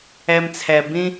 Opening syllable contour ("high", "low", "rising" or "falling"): low